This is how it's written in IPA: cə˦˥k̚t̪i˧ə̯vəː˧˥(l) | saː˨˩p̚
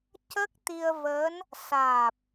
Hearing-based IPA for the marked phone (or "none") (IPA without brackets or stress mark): n